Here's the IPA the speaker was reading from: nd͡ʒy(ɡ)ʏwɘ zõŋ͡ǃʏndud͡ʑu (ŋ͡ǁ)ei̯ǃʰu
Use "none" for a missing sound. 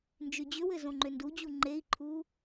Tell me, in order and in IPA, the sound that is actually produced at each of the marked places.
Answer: d͡ʑ, ŋ͡ǃ

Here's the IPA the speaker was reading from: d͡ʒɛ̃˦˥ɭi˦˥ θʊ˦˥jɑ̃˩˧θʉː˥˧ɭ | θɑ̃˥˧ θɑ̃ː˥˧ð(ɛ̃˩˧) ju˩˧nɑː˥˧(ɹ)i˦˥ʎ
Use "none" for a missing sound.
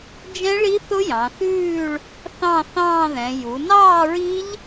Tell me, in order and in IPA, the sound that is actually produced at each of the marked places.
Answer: ɛ̃˩˧, ɹ

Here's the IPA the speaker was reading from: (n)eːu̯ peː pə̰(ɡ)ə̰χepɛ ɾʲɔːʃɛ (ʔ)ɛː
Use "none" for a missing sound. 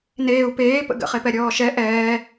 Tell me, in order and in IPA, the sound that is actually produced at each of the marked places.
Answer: n, ɡ, ʔ

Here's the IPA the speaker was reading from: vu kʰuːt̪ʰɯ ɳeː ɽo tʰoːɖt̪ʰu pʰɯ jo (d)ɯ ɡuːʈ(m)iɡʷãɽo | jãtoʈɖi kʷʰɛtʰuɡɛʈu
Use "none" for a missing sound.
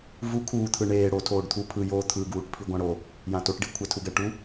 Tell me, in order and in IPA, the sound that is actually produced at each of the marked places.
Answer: t̪ʰ, pʰ

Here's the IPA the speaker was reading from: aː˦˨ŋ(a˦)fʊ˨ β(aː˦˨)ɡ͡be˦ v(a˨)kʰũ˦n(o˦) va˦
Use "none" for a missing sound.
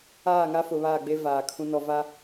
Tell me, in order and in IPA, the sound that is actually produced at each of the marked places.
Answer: a˦, aː˦˨, aː˨, ɔ˦

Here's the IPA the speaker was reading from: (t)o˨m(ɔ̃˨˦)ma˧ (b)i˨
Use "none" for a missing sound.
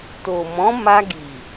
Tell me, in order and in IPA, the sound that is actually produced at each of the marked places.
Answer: t, ɔ̃˨˦, ɡ

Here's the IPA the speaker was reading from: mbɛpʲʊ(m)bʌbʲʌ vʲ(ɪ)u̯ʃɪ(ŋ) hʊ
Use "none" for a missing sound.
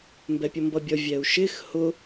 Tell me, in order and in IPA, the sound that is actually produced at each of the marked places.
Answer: m, ɛ, x

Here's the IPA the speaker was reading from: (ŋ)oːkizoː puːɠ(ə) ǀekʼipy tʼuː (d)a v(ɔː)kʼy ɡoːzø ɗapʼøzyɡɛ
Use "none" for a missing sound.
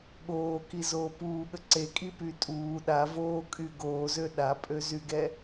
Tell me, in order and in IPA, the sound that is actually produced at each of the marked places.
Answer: ɠ, ə, ɗ, oː

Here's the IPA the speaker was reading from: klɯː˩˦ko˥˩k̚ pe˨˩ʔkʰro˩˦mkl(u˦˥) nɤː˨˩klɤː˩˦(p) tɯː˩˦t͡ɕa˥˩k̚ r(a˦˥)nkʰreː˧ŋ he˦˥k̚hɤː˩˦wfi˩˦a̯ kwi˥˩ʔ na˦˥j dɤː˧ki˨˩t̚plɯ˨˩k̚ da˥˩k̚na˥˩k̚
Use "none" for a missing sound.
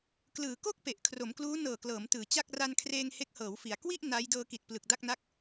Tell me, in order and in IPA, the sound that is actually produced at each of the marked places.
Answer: uː˦˥, m, a˧

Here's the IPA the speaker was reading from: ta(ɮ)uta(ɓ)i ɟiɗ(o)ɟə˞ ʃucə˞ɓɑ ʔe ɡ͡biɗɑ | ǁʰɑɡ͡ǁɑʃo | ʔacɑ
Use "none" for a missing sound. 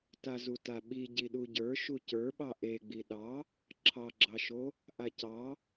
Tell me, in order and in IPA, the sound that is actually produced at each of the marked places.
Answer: z, ɓ, u

